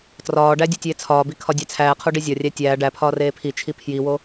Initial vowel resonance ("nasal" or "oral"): oral